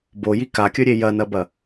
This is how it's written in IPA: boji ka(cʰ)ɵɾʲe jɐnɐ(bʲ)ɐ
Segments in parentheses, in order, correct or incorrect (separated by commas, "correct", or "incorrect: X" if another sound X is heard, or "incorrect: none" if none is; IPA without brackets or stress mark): incorrect: kʲ, incorrect: b